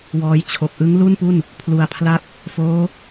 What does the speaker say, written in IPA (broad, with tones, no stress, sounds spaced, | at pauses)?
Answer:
w ɔː˧ j t͡ɕʰ o˨˩ k̚ ʔ ɯ˦˥ ŋ l u˥˩ n p u˥˩ n | pʰ l u˨˩ a̯ pʰ l a˥˩ k̚ | f oː˦˥